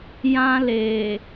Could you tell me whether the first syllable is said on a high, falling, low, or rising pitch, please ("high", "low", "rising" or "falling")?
high